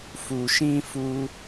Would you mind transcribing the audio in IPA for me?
f u˨ ʃ ĩ˧ f u˧

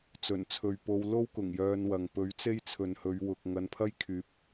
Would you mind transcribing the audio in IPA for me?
t͡s ɵ˨˩ n t͡sʰ ɵ˨ ɥ p o˧ w l o˥ w k ʊ˨˩ ŋ j œː˧ n w ɐ˨ ŋ p ɵ˨˥ ɥ t͡s e˥ j t͡sʰ ɵ˨ n h ɵ˨˧ ɥ w ʊ˨ k̚ ŋ ɐ˧ n pʰ ɐ˥ j kʰ yː˨˥ p̚

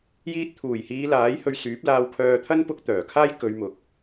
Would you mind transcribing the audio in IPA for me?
j iː˧ t̚ t̪ʰ uː˨˩ j h iː˨˧ l aː˨˥ j h ɵ˧ ɥ s yː˨˥ p̚ l aː˧ w kʰ œː˧ t̪ʰ ɐ˥ n p ʊ˧ k̚ t̪ œː˨˩ kʰ aː˥ j k ɵ˨˧ ɥ m ʊ˨ k̚

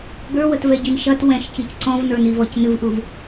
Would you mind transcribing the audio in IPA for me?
ɡ ə˞ w ə t v ɛ ɟ i n ʃ ɐ t w ɛ̃ ʃ c i c ǀ ɔ̃ v n ə˞ n i v ɔ c n ɨ v ʔ u v

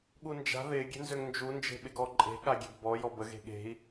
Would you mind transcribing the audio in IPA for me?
ɠ u n d͡ʒ a̤ ð ɪ ɡʲ e̤ n z ø ŋ n d͡ʒ u n d͡ʒ e̤ ɓ ɪ ɡ ɔ ǃʼ e̤ ɠ a ɡʲ e̤ ɡ b ɔ j ɔ b ə ɣ e̤ ɠ e̤ i̯

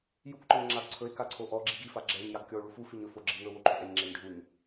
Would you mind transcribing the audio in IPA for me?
j u k ǃ ɔ ɲ ŋ͡ǁ a ɡ ǀʰ ɵ e̯ k a ǀʰ o ʔ ɔ ɡ͡ǁ i ɡ i f a ɡ͡ǁ ɛ ɲ j a ɡ kʲ ɔ o̯ ɭ u f u f i ɲ ɵ f o ɡ͡ǁ i ŋ ɵ w o ǃʰ ɵ ʔ ɛ ɲ ŋ͡ǁ ɛ ɲ ɖʱ u ɲ

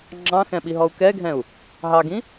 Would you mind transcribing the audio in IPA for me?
ŋ͡ǁ ɑ̃ x ɛ̃ ɓ i ɦ ɔ u̯ k ɛ ɡʱ ɛ̃ u̯ | ɦ ɑ ɡ ĩ

